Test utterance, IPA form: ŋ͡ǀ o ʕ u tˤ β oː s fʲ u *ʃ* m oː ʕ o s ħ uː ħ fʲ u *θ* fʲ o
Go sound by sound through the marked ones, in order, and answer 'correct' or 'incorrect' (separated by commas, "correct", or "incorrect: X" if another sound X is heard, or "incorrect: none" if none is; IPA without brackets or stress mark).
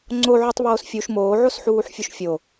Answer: correct, incorrect: ʃ